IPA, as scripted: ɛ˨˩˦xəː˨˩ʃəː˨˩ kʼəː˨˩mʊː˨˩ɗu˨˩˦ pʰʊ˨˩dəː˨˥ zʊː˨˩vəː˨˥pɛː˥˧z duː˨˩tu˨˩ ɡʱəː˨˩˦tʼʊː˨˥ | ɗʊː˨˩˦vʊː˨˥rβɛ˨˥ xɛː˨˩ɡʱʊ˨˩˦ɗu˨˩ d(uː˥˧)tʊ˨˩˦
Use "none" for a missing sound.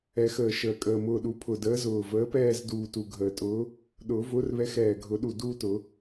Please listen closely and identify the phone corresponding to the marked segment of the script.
uː˥˧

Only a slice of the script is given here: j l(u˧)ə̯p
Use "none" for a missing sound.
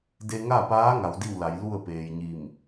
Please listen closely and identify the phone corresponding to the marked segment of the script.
u˥˨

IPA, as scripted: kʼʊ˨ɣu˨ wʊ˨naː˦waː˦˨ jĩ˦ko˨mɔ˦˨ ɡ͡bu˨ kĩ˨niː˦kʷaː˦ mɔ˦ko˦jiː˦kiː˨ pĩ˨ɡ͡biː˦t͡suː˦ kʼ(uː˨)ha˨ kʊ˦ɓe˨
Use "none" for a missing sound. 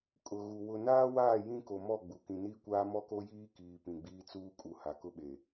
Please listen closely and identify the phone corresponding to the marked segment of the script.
u˨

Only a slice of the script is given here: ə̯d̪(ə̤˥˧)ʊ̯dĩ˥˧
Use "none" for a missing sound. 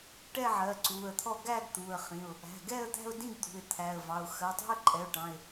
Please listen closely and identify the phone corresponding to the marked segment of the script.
æ̤˥˧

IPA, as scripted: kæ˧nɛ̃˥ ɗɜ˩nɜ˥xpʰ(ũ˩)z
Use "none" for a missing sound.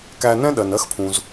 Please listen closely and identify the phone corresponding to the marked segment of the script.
ũ˩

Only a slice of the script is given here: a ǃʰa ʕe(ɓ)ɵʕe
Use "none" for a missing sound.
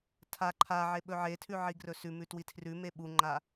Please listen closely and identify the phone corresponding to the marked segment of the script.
ɓ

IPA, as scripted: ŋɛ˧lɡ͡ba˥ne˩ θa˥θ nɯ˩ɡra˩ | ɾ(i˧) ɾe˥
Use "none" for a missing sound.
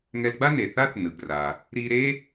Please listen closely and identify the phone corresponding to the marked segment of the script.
i˧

